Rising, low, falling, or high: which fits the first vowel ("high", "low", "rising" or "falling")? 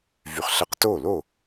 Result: rising